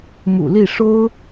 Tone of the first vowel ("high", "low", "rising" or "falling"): low